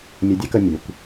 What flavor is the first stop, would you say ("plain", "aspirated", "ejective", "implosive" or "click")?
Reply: plain